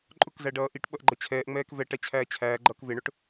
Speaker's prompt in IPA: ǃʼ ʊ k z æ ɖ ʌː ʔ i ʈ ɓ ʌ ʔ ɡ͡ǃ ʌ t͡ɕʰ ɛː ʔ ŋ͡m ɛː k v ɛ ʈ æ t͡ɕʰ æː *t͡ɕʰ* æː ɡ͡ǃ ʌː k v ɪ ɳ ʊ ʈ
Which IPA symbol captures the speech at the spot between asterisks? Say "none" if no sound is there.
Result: t͡ɕʰ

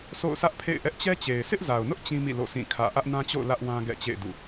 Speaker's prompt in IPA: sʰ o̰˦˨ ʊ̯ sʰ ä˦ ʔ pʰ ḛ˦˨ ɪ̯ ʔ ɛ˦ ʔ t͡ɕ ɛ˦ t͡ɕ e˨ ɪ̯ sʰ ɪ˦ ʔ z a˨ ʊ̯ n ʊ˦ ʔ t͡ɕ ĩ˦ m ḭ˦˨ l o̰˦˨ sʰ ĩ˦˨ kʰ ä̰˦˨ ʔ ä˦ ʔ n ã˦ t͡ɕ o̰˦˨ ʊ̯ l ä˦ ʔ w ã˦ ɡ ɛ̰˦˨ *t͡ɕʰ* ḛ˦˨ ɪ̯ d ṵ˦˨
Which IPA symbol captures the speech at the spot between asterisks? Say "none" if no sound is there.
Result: t͡ɕ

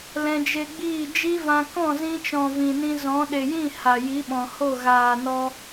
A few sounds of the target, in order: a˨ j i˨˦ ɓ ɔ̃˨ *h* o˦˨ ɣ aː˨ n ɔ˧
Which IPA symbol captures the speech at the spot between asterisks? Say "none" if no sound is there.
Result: h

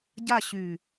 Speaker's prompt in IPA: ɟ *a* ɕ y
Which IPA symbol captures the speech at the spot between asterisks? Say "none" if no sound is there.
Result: a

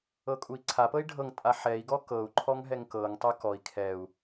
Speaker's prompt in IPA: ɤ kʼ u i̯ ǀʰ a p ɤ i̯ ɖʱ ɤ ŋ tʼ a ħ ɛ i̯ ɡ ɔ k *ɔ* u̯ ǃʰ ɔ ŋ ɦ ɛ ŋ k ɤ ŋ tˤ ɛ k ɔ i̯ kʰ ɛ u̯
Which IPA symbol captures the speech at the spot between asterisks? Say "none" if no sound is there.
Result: ɤ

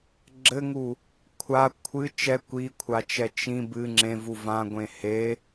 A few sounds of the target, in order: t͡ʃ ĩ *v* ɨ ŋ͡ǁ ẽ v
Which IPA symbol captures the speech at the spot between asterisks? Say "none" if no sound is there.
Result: b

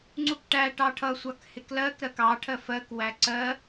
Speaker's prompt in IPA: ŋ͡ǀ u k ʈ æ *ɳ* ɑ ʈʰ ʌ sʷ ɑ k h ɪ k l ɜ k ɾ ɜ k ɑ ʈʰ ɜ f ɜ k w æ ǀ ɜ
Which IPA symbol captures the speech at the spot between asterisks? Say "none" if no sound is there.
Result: ʈ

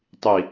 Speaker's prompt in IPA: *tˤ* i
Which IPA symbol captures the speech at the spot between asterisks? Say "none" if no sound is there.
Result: tˤ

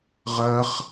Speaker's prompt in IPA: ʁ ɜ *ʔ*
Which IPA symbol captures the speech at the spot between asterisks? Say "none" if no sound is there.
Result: χ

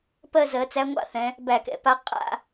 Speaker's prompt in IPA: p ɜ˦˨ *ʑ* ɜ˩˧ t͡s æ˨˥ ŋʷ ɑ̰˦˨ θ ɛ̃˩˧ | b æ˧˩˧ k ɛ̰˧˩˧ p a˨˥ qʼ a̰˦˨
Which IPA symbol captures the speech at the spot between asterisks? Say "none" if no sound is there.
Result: z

